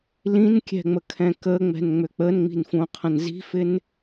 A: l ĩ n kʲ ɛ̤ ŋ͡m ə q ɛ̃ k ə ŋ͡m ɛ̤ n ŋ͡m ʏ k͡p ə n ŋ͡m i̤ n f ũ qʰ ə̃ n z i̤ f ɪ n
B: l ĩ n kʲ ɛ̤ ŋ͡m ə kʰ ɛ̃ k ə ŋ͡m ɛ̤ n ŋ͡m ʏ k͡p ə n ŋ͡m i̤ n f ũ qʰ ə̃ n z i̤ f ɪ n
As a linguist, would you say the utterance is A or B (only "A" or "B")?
B